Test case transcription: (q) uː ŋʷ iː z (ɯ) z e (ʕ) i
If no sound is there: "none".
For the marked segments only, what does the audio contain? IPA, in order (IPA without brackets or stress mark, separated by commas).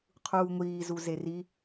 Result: qʰ, u, r